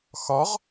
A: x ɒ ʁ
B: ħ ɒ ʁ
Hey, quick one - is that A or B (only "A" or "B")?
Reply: A